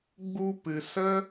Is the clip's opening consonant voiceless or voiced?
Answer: voiced